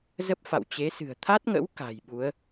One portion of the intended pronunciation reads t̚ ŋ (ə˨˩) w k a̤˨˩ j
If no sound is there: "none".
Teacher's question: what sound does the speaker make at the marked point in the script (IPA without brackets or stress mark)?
ə̰˧˥